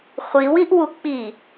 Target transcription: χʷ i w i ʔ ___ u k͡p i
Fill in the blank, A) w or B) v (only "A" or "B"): A